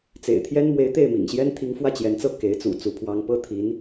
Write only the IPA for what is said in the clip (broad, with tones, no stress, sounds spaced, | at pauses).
t͡s ḛ˨˩ ɪ̯ t̪ʰ j ɛ˥ n m w e˧˥ ɪ̯ t̪ e˥˩ ɪ̯ m ḭ˨˩ ŋ ɕ j ɛ˥ n t̪ʰ i˧˥ ŋ f w ä˥˩ t͡ɕ j ɛ˧˥ n t͡s ɤ˥˩ k e˧˥ ɪ̯ t͡s ṵ˨˩ t͡s u˧˥ pʰ w ɑ˥ ŋ p ɤ˥ t̪ʰ i˧˥ n